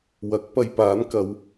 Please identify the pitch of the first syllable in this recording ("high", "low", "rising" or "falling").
rising